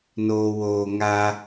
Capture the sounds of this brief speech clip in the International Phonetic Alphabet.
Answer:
n oː˨ w oː˨ ŋ a˦

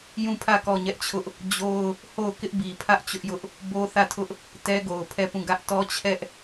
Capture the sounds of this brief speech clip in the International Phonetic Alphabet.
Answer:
j ũ˦˨ pʰ ä˦˨ k ɔ˦˨ ɲ ɛ˦ ʔ t͡ɕʰ ʊ˦ ʔ | d͡ʑ o˦ ʊ̯ | h o˦˨ ʊ̯ k ɪ˦ ʔ b i˨ pʰ ä˦ ʔ t͡ɕ ʊ˦ ʔ j ʊ˦ ʔ | b o˦ θ ä˦˨ tʰ ʊ˦ ʔ | t ɛ˦ ɡ o˨ ʊ̯ pʰ ɛ˦˨ p ũ˦˨ ɡ ä˦ ʔ t ɔ˦ t͡ɕʰ ɛ˦ ʔ

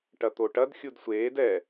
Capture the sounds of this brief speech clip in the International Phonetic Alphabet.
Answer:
ʈ ɐ t̪ o ʈ ɐ d xʲ u d sʷ eː d ɛ

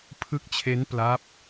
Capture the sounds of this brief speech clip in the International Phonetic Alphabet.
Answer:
pʰ ɯ˦˥ k̚ t͡ɕʰ e˦˥ n p l a˦˥ p̚

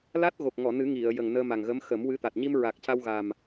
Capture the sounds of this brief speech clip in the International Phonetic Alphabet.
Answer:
l a˦˥ t̚ ɣ o˨˩ k̚ ŋ ɔ˨˩˨ n ɨ˨˩˦ ŋ i˨˩˨ ə̯ j ə˨˩ ŋ n əː˧ m a˨˩ ŋ ɣ ə˧˥ m x ə˨˩˦ m w ɨ˧˥ t̪ a˨˩ t̚ ɲ i˧ m ɹ a˨˩ k̚ c a˧ w ɣ a˨˩ m

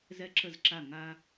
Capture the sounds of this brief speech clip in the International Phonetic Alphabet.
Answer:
z ɛ˧ ǁ ə˧˩ z ǁ a˧˩ ŋ a˧

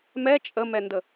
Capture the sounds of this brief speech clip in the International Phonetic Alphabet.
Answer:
m ɛ t͡ʃʼ ə m ɛ n d ə

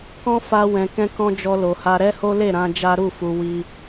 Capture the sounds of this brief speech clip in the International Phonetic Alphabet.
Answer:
k ɔ̃˦ f a˧ w ɛ̃˨ k ɛ̃˧ k ɔ̃˧ d͡ʒ ɔ˧ l o˨ h a˧ ɾ ɛ˦ h o˦ l e˦˨ ɾ ã˧ d͡ʒ a˦ ɾ u˦˨ f u˧ w i˧

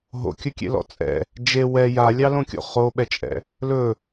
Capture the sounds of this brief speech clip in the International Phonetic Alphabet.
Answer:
ɦ o̰ kʲ ɵ kʲ ḛ l ɔ̰ t͡sʼ ɛ̰ | d͡ʒ e w ɛ j a lʲ ɑ l õ kʲ o̰ χ o ɓ ɛ t͡ʃʼ ɛ̰ | l ɵ

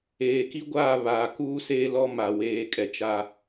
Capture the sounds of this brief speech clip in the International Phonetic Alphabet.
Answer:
eː˨ k i˦ ɡʷ aː˦˨ β aː˨ k uː˦ s eː˦ l ɔ˦ m a˨ w eː˨ kʼ ɛ˨ t͡ʃ a˦

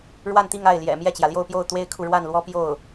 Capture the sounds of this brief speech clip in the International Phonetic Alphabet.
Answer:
ɻ w a˥˧ n t̪ i˥˧ ŋ a˥˩ ɪ̯ l j ɛ̰˨˩ m j ɛ˥˩ t͡ɕ j ä˩ l j o˥˧ ʊ̯ p j o˥˩ ʊ̯ t̪ w e˥ ɪ̯ kʰ u˨ ɻ w a˥˩ n l w ɔ˥ p j o˥˩ ʊ̯

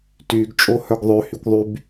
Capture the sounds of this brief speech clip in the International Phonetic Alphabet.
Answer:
t y ɡ t͡ʃʼ o h œ ɡ ðˤ ø h y kʷ ðˤ y b

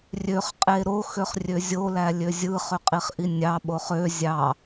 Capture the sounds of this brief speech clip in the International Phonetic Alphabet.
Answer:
rʲ ø χ qʼ e ɾ o x ø χ rʲ ø zʲ o l æ lʲ ø zʲ ɯ χ ø qʼ i χ ʔ i nʲ ɑ ɓ o χ ø zʲ ɑ

